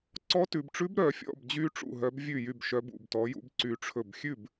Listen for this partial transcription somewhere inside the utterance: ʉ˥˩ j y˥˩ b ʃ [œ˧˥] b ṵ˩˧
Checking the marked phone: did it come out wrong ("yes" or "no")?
no